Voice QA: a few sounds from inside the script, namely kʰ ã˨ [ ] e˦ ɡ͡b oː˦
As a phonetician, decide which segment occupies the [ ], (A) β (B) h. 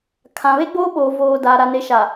A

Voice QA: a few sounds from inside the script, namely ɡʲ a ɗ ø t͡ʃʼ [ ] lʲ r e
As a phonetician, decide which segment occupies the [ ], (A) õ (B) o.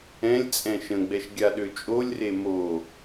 B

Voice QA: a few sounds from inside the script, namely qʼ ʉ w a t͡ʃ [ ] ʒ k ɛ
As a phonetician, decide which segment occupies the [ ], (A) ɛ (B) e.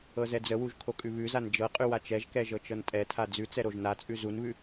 A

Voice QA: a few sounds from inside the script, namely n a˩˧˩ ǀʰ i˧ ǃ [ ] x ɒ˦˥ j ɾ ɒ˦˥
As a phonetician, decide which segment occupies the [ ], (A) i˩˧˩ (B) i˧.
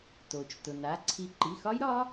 A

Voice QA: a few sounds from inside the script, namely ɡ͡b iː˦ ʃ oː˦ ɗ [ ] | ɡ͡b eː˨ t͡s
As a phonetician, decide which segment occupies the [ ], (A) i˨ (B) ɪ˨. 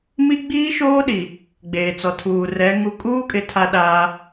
A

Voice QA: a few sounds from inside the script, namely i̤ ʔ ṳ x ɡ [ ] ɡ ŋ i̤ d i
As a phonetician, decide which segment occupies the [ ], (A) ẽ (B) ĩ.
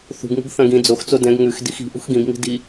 B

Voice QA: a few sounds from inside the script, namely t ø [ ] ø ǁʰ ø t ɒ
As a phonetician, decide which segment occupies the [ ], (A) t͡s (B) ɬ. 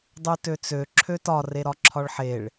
A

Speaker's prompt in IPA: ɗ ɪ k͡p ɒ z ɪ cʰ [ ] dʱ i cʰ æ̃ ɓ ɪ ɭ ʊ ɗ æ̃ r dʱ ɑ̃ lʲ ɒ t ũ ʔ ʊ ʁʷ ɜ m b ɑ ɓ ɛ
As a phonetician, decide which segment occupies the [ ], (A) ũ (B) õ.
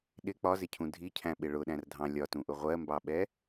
A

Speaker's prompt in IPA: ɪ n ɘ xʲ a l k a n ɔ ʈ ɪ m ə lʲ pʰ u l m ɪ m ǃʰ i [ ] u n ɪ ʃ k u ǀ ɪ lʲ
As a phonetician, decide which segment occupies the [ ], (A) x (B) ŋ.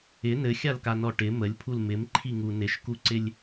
B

